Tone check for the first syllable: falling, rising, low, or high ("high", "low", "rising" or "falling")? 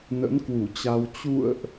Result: rising